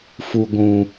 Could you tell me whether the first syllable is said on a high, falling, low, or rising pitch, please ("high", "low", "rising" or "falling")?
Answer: low